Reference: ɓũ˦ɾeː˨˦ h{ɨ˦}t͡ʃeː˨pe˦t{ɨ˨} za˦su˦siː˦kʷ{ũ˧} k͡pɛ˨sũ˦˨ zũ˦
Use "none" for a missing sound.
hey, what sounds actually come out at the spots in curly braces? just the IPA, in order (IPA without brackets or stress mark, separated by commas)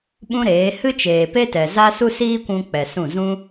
ɨ˦, ɛ˨, ũ˧